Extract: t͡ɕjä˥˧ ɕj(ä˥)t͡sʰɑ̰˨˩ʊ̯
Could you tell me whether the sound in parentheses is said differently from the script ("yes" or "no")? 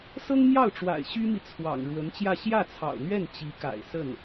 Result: yes